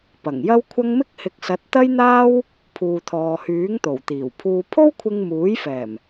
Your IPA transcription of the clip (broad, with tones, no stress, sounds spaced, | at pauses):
p ɐ˨˩ ŋ j ɐ˥ w kʷʰ ɐ˥ ŋ m ɪ˥ k̚ h ɪ˨˥ k̚ s ɐ˨˥ t̚ t̪ ɐ˥ j n̪ aː˥ w | pʰ uː˨ t̪ʰ ɔː˨ h yː˨˥ ŋ t̪ o˨˩ w t̪ iː˨˩ w pʰ uː˨ pʰ o˥ w kʷʰ ɪ˧ ŋ m uː˨˥ j f ɛː˨˩ m